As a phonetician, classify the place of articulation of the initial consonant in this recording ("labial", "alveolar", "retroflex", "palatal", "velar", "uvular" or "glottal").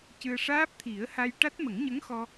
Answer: palatal